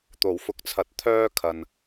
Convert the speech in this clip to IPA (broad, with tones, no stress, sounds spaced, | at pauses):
t̪ o˨˩ w f ʊ˨˥ k̚ t͡sʰ ɐ˨ t̚ t̪ʰ œː˥ kʰ ɐ˨ n